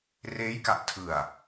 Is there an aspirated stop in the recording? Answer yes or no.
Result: yes